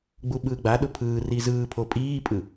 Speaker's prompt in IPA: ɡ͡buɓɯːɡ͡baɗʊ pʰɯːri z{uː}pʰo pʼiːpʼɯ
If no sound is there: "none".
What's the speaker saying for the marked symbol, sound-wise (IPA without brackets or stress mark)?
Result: ɯː